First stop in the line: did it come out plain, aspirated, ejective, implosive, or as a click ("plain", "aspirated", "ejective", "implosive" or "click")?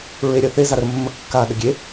plain